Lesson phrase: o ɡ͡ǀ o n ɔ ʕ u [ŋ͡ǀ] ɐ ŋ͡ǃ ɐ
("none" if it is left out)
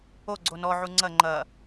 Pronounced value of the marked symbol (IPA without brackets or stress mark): ŋ͡ǀ